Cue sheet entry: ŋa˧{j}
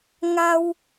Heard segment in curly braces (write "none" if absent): w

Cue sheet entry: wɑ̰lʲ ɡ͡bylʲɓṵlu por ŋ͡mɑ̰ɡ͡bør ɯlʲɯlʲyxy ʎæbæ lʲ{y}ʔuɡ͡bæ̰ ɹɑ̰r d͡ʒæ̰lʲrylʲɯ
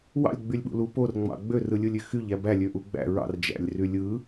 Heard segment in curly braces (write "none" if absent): ø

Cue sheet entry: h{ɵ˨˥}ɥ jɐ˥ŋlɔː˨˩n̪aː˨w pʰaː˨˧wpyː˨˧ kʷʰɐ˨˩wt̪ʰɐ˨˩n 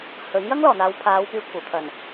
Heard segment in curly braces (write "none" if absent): ɵ˨˥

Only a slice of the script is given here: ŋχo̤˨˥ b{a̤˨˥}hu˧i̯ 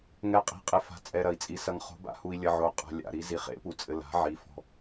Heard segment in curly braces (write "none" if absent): a̰˨˥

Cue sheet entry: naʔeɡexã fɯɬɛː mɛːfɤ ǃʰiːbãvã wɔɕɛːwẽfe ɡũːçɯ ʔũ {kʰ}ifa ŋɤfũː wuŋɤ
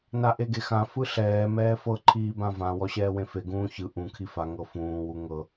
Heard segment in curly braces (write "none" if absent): kʰ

